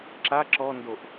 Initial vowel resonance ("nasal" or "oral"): oral